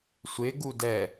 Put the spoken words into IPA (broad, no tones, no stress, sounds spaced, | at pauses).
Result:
sʷ ɪ ɡ u d ɛ